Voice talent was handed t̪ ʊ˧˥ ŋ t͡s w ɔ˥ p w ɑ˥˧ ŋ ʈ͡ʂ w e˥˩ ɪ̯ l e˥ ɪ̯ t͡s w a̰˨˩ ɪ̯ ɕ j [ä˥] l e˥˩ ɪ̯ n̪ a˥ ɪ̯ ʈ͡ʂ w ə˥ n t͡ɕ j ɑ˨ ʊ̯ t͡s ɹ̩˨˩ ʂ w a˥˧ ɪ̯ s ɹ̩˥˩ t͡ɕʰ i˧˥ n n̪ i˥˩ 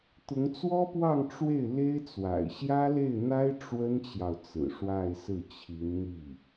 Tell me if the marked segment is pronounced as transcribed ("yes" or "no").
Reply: yes